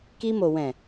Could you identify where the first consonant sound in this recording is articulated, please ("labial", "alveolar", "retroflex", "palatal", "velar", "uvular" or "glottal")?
velar